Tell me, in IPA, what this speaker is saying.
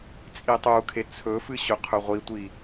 t͡sʼ i tˤ u kʰ e t͡sʰ ɵ f ɨ ɕ ɵ qʰ ɵ ʁʷ i tʷ i

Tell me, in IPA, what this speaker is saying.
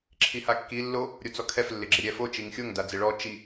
ǁʰ i h a kː i lː o | ɾʲ o t͡s ɔ kʰ ɛ f lː ɪ ɡ͡ǁ ɪ ɾʲ ɛ f o t͡ʃ i ŋ xʲ o ŋ d a d͡z ɪ ɭ ɔ t͡ʃ i

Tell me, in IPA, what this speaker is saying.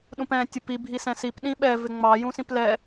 ɗ ũ p ɛ̃ tʲ ʊ p i bʱ i s ɛ̃ s i p ɗ ĩ ɓ ɛ v ɪ ŋ͡m ɑ j ũ s ĩ p l ɛ

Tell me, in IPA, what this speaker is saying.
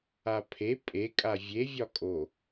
a pʰ e pʼ e kʼ a vʲ e vʲ ɒ kʼ o

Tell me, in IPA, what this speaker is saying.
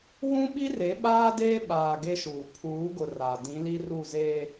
w ũ˦ ɓ i˦ r e˨˦ ɓ aː˦ d eː˦ ɓ aː˨ ɡ e˦ ʃ uː˨ pʰ uː˨˦ ɡ ʊ˨ r a˨ d ĩ˨˦ l i˦ r u˦˨ z eː˦

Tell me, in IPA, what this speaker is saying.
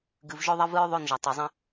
ɡ ɨ˨ v ʒ ɵ˦ ðˤ ɐ˦ v ɨ˦ ɹ ðˤ o˦˨ n ʒ ɐ˨ tˤ e˨ zˤ ɐ̃˦

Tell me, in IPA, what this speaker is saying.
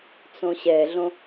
t͡s õ ɕ ɛ ɮ õ

